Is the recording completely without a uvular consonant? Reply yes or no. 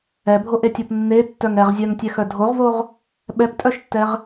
no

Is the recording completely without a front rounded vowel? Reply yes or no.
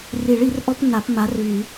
no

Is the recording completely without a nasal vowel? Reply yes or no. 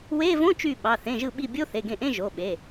no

